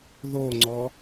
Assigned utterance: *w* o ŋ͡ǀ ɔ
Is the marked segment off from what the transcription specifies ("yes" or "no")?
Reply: yes